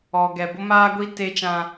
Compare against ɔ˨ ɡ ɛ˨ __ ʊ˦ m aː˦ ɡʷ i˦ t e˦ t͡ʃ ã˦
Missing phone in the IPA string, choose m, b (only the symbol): b